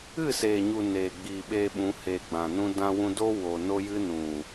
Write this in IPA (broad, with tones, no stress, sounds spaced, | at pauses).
ɨ˦˨ s eː˨ ɲ u˨ n eː˨ ɡ͡b iː˨ ɓ eː˧ ɓ ũ˨˦ h eː˧ ɡ͡b ã˨ n ũ˦ d ã˧ w ũ˧ d o˦ w o˧ n o˦ j ɨ˦ n ũ˨